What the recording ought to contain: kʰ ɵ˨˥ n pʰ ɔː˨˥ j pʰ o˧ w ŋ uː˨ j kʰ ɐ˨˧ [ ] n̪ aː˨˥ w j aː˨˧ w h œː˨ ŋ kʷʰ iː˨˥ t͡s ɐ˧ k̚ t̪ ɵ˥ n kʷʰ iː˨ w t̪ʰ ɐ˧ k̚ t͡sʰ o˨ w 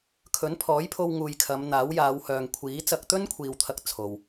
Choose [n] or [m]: m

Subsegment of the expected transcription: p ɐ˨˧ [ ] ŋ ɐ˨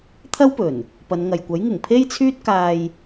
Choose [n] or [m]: n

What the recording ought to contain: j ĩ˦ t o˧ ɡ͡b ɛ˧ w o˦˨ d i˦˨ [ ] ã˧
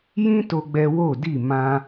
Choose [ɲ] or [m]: m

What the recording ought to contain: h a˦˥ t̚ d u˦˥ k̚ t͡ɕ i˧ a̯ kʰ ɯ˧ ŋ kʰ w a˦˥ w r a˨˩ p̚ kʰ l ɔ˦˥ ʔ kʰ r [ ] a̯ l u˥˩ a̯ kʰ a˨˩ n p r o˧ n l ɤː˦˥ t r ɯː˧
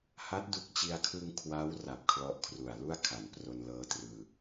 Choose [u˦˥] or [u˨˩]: u˨˩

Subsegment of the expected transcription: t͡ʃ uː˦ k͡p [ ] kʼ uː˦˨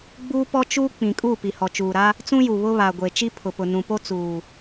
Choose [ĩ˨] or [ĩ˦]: ĩ˨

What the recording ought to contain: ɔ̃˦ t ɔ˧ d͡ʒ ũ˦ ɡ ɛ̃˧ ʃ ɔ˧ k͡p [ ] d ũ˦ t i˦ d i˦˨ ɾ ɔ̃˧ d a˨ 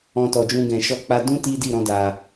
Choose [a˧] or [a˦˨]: a˧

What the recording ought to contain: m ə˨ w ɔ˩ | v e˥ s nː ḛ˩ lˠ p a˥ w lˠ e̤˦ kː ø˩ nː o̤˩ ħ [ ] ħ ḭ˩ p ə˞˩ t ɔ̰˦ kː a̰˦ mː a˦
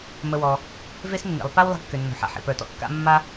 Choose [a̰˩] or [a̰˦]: a̰˩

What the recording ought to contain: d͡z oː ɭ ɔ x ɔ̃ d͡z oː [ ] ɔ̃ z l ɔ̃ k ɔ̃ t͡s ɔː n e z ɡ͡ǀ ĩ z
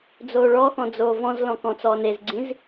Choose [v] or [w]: v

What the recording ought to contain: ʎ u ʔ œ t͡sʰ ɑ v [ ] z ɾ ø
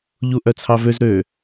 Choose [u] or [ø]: ø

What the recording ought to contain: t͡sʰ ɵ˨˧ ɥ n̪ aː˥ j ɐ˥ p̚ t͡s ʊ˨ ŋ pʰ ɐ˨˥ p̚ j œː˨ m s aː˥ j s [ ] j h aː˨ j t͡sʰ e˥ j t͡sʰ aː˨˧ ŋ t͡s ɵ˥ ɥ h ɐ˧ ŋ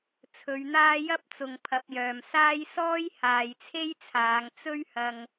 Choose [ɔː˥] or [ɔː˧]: ɔː˥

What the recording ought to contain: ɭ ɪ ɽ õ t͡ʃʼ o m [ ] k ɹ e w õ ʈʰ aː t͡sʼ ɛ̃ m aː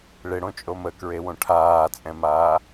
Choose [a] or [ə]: ə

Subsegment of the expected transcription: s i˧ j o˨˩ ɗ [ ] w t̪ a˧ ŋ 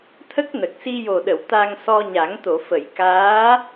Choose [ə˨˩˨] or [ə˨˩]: ə˨˩˨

